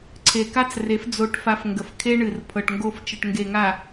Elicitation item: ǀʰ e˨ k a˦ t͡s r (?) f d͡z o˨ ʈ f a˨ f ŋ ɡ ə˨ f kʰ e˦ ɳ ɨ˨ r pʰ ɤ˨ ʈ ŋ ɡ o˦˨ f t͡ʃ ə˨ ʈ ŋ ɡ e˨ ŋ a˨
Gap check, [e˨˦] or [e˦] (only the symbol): e˨˦